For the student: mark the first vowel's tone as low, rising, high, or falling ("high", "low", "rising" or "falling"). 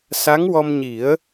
rising